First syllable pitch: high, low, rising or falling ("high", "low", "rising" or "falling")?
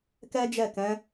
high